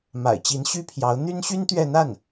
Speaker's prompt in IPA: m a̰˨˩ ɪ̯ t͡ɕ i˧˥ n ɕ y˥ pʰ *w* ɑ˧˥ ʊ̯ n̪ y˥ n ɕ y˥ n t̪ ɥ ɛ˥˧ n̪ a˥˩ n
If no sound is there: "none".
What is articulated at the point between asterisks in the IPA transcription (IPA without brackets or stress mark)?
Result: j